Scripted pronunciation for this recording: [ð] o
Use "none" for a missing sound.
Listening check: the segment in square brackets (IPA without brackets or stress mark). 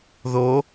ð